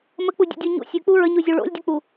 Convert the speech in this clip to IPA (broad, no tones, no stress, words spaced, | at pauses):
mək͡pudʲṵdʲu ɲṵ sʲʉk͡pu ɹəɲuzʲu ɭo̰lʲdʲʉk͡pu